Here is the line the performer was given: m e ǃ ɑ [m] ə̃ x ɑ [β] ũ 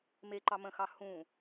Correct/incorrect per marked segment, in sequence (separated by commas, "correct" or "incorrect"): correct, incorrect